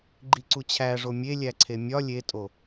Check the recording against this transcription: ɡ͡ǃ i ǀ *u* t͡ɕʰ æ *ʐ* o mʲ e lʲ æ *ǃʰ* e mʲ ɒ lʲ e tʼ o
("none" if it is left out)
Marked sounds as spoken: u, ʐ, ǀʰ

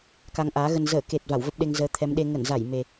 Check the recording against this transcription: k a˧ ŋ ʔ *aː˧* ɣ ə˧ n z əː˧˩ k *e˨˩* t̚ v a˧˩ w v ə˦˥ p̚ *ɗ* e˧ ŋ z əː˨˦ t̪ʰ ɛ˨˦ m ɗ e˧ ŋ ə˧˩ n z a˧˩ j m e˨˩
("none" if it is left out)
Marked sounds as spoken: aː˨˦, e˨˩, ɗ

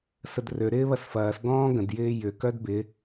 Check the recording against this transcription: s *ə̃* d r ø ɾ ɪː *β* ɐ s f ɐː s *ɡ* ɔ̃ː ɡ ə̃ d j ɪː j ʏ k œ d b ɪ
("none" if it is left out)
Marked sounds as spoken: ə, β, ɡ

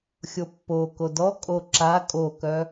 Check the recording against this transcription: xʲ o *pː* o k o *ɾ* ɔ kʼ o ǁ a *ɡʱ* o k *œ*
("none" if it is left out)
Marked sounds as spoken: pː, d, kʼ, œ

